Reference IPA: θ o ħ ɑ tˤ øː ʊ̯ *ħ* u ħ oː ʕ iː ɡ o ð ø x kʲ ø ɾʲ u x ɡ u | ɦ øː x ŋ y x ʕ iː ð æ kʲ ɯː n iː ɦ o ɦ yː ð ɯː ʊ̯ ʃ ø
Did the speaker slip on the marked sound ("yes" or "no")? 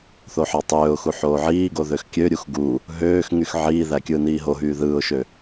yes